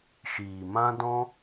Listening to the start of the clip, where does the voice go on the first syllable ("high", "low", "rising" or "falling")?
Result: low